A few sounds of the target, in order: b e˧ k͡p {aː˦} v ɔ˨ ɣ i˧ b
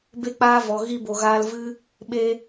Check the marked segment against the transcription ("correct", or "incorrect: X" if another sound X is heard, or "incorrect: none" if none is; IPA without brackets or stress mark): incorrect: aː˧